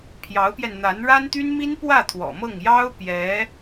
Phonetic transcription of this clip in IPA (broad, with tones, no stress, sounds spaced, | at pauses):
pʰ j ɑ˧˥ ʊ̯ p j ɛ˧ n n̪ a˧˥ n ɻ a˥ n t̪ y˥ n m i˥ n p w ä˥˩ t̪ʰ w ɔ̰˨˩ m ɤ˥˩ ŋ j ɑ˥ ʊ̯ p j ɛ˧˥